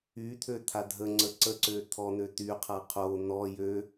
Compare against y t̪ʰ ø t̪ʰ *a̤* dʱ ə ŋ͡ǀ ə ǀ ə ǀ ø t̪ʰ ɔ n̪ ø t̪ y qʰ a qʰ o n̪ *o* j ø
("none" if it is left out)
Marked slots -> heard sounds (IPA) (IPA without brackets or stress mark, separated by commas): a, ɔ